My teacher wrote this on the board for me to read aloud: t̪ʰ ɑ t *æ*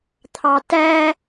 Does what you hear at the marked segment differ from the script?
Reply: no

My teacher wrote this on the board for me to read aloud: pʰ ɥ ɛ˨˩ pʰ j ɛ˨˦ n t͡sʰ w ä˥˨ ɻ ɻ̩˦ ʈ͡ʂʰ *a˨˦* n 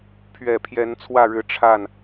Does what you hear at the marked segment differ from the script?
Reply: yes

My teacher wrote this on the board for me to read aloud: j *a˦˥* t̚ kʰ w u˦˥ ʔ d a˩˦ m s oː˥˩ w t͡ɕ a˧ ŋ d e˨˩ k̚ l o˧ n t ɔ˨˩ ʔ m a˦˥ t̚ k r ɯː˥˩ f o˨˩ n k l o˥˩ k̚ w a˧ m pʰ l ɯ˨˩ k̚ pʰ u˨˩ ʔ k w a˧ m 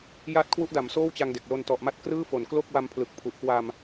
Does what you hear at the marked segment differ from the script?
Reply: no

